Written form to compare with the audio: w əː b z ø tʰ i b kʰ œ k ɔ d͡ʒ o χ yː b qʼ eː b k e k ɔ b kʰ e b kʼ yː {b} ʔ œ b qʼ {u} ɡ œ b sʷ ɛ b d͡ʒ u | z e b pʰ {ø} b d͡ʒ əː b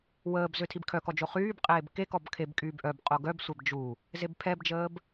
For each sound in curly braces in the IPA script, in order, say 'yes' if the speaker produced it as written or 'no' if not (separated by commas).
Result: yes, no, no